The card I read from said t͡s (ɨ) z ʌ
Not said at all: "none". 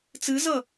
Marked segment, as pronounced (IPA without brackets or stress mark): ɨ